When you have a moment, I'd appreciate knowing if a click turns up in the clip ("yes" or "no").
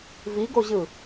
no